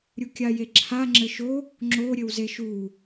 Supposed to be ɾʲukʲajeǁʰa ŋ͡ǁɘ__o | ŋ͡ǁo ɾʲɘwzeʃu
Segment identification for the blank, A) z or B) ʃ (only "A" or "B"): B